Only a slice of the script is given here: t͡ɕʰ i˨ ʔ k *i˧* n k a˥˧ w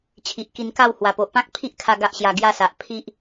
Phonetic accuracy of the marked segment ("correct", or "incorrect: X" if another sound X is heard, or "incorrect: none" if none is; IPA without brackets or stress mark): correct